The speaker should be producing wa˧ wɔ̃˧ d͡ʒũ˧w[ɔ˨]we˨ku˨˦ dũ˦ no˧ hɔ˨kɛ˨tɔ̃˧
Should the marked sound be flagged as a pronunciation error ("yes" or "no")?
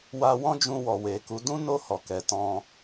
no